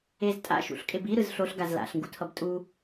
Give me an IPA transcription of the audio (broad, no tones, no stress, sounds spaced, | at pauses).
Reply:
e z tʼ a̰ ʃ ṵ ɬ kʼ e b i ɾ ɯ z ɬ o ɬ ɡ a z l a̰ ɬ ŋ ɡ u tʰ ʌ b tʼ u